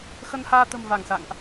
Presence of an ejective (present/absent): absent